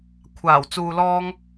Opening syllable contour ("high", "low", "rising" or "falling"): low